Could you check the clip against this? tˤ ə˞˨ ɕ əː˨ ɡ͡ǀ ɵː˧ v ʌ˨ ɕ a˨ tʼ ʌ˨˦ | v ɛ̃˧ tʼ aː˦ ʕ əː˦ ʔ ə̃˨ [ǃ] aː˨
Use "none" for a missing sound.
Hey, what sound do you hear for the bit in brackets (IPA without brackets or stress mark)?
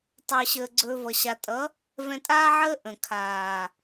kʰ